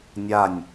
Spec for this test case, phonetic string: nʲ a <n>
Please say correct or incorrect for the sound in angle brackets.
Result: incorrect